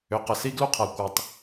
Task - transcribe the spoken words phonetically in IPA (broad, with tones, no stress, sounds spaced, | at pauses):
ʏ˨ q ə˨ s i˦ ɡ l u˦ qʰ a˨ kʷ ə˞˨ tˤ